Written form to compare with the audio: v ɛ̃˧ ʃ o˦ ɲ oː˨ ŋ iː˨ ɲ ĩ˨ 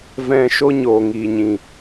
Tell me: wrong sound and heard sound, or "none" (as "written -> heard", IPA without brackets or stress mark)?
none